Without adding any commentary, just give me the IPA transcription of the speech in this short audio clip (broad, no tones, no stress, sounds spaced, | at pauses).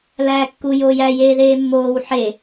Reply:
l æː kː u j oː j æ j eː ð eː mː oː w ħ e